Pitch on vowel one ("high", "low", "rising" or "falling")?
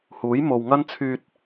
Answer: rising